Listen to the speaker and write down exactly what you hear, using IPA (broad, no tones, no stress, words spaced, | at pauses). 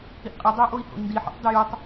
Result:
hiʔqʼɪ dˤʏu̯ʔoi̯ho̰i̯ndi ħɔ̰tˤdɪjutˤ